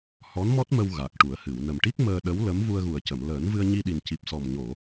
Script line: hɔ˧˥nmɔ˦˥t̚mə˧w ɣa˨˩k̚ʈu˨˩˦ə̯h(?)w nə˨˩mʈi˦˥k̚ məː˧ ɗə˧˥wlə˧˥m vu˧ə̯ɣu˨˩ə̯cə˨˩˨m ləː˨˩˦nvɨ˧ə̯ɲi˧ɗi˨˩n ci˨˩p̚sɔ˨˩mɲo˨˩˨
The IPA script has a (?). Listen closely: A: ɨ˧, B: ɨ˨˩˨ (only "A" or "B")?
B